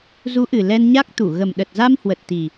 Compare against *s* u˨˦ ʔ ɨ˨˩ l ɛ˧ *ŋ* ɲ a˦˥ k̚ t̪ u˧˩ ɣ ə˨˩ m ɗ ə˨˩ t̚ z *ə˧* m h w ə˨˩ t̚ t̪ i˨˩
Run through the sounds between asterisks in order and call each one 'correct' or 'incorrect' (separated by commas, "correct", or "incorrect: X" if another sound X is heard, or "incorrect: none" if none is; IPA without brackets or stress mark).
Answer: incorrect: z, incorrect: n, incorrect: a˧